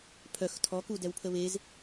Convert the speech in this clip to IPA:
pʰ œ x tʰ ɔ k u d ɛ w pʰ ə β e z

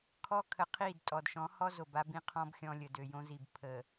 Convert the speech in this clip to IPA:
kʰ ɔ˦ kʰ ə˨ qʰ i˦˨ d tʼ ɔ˨ d ʃ ɔ̃˨˦ h ɔ˦ z o˨ b a˦ b ĩ˦ qʰ ɔ̃˦ b xʲ ɔ̃˦ lʲ ə˨ d ø˨ j õ˦ z i˨ b pʰ ə˨

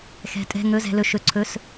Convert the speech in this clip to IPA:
x ɛ̤˩ tʼ ɛ̤˩˧˩ ŋ ɵ˩˧˩ z ɛ̤˩ l ɵ˩ ʃ ɵ˩ ǀʰ ɵ˩˧˩ s

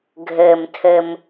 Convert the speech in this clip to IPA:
ɡʱ ɘː˩ m tʰ ɘ˩ m

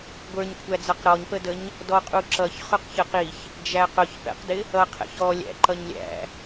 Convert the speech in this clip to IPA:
ɡʷ ə˞ ɲ kʷʰ æ d͡z ʌ q ɾ ɔ ɲ p ə d ə ɲ | d ɔ qʼ u ǁ ʌ ç χ ʊ q ç ə q i ç | d͡ʒ æ q ʊ ç p ɛ̰ q d ɪ | ʌ qʰ ɛ̰ ç ɔ lʲ æ̰ ǃ ʌ ɲ lʲ æ̰

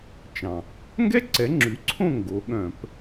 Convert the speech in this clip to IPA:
t͡ʃ ɑ̃˨˩ | ŋ ɡ ɛ˥ ǀ ɛ˩˥ ŋ͡ǁ ʉ˩˥ ǀʰ õ˥˩ ŋ ɡ o˩˥ ɠ œ̃˧˩˧ p

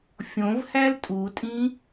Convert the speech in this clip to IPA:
fʲ õ v h æ l tʼ u tʼ ĩ

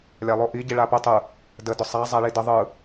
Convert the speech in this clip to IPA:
lʲ a lˠ o ʔ i ɟ i ɭ a p ə tˤ ɯ | d ə d ʊ sˤ a zˤ a ɭ i d ə ðˤ ɯ

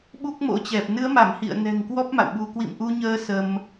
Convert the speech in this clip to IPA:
ɓ u˦˥ k̚ m o̰˧˥ t͡ɕ ɛ˨˩ p̚ n ɨ˨˦ ə̯ m a˧˩ m h ḭ˧˨ ə̯ n ɛ̤˨˩ ŋ k w ɔ˦˥ p̚ m a̰˧˨ w ɓ u˧ k w ḭ˧˨ m ʔ u˧ ɲ əː˨˦ s ə˧ m

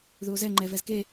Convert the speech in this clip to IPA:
ð u o̯ z ɛ ŋ͡ǃ ɛ v ɛ z k e

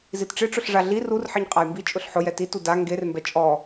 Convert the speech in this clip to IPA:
z i t ʈ͡ʂ ɪ ʈ͡ʂ ʊ ɬ ʐ a ɮ i r u r ħ i ɲ qʼ a j m b i t͡ʃʼ ʊ ɬ ħ ʊ j ɛ t i t u d a ŋ ɡ e r m b ɛ t͡ʃʼ ɔ

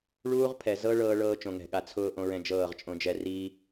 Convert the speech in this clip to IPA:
ɭ uː˦ ʁ pʰ ɛ˨ z ɤ˦ ɭ ɤː˦ ɭ ɤː˦ t͡ʃ õ˨ ŋ ɛ̤˨ ɠ a˨ t͡sʰ ʊː˦ ʔ õ˦ ɹ ɛ̃˦ d͡ʒ ɤː˦˨ ʁ t͡ʃʼ õ˦ d͡ʒ ɛ˦ r iː˦

